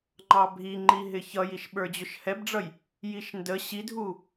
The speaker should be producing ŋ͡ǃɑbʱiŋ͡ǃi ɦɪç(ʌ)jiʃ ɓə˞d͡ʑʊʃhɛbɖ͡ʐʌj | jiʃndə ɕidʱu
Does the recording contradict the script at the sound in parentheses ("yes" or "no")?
no